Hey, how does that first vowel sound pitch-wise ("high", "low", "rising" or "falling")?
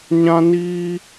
high